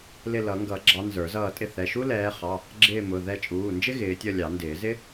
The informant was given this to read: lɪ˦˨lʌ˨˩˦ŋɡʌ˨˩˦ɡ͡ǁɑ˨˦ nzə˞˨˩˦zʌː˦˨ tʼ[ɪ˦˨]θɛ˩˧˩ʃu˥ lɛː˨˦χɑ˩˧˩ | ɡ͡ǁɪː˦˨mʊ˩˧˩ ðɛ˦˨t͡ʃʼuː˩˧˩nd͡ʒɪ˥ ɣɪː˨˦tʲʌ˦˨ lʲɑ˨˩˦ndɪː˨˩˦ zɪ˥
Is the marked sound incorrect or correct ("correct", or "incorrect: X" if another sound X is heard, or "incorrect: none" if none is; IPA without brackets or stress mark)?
correct